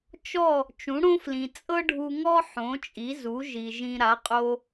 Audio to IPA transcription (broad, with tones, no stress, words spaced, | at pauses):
t͡ʃɔ˥˩ | t͡ʃũ˩˥ɽõ˥flĩ˩ t͡sʼɤ˥ɖʱu˧ŋɔ˥ ħõ˩˥t͡ʃʼi˩˥zu˩˥ ʒi˩ʒĩ˧ ɾa˩˥qʼo˧